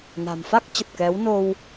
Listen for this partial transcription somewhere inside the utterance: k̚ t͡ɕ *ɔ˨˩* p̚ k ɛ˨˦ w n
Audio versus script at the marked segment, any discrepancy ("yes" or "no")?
yes